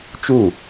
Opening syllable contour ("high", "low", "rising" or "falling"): falling